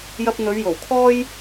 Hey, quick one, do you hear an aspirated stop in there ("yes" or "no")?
yes